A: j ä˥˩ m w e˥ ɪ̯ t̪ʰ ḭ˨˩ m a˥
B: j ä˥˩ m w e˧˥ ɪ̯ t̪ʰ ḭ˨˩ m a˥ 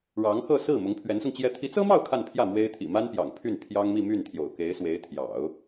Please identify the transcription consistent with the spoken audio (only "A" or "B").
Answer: A